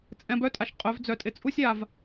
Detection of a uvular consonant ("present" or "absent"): present